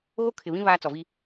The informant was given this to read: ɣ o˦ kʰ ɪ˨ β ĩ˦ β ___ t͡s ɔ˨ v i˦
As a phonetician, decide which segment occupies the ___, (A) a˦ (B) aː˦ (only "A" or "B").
B